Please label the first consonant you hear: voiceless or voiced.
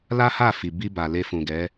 voiced